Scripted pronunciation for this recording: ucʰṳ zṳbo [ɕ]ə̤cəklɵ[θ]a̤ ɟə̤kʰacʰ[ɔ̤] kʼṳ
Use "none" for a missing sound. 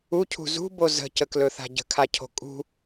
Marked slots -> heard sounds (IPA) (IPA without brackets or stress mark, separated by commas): z, θ, o̤